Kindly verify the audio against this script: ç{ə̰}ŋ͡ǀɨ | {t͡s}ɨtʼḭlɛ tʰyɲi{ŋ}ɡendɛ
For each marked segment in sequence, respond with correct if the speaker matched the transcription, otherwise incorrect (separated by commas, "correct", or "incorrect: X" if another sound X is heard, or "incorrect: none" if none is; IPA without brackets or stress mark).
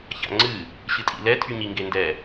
incorrect: a̰, incorrect: ɕ, correct